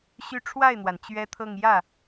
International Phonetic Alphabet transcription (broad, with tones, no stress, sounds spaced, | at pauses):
ɕ y˥˧ ʈ͡ʂʰ w a˥˩ ɪ̯ n̪ w a˩ n t͡ɕ ɥ ɛ˥ t̪ʰ ɤ˥˧ ŋ j ä˥˩